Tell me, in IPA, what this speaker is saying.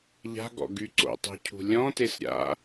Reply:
ʎ a̤ ɡ ɔ̰ ɡ y ǀ o̰ tˤ o̤ cʰ ṳ lʲ ɔ̃ t e s ɾʲ a̰

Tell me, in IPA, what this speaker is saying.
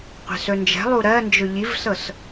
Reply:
qʷ ɛ̤ s ɵ n d͡ʒ ɛ̤ lˠ u ɾ ɜ n d͡ʒ ɵ ʎ i v s ɤ s

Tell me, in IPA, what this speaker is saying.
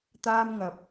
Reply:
t̪ aː˥ m ŋ ɐ˨ p̚

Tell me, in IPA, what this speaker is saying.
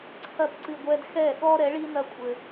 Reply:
ǀʰ ɐ˦˨ p ǀ ɨ˧ ɡʷ ɛ˦ d x ɛ˦˨ ɠ ɔ˦ ɾ ɛ˨˦ ɭ i˦ n ɐ˦ kʷʼ ɘ˧

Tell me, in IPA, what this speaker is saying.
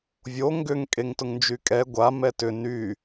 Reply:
vʲ o ŋ ɡ ʏ ŋ kʼ e ŋ t ʊ ŋ n d͡ʒ y kʼ ɛ ɡʷ a m ɛ t ʏ n y

